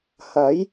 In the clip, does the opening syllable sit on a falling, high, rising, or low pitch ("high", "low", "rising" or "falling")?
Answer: rising